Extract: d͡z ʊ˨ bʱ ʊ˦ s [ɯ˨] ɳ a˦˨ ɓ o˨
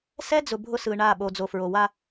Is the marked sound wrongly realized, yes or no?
no